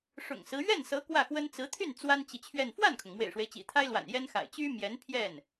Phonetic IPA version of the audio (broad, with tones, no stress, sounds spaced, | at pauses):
ʂ ʊ̰˨˩ ŋ s ɹ̩˦ ɥ ɛ˥˩ n s ɤ˧˥ k w ä˥˩ x w ə˥ n t͡s ɹ̩˧˥ t̪ʰ y˥˩ n t͡s w a˥ n t͡ɕ i˨ t͡ɕʰ ɥ ɛ˥˧ n f w a˥˩ n kʰ ʊ˩ ŋ m w ḛ˨˩ ɪ̯ ʂ w e˦ ɪ̯ t͡ɕ ḭ˨˩ t̪ʰ a˥ ɪ̯ l w a̰˨˩ n j ɛ˥ n x a̰˨˩ ɪ̯ t͡ɕ y˥ m j ɛ˧˥ n pʰ j ɛ˥˩ n